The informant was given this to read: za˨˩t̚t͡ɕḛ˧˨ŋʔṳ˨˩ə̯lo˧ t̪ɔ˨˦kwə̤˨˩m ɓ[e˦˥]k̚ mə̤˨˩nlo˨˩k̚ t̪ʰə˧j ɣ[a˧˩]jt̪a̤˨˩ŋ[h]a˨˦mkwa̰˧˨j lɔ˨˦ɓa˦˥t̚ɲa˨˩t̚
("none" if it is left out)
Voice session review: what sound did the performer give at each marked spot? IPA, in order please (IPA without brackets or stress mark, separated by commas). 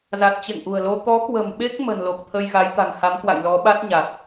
e˦˥, a˨˦, h